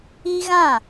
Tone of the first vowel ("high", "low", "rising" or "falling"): high